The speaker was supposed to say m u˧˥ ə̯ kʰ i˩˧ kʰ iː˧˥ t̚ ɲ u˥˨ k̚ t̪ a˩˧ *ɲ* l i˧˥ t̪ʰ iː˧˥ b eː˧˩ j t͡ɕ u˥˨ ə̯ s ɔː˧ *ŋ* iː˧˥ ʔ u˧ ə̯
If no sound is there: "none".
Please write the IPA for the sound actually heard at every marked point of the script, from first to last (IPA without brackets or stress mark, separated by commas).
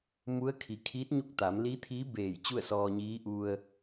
m, ɲ